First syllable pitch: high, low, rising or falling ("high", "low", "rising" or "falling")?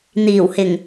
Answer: low